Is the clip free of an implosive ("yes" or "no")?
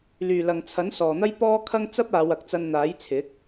yes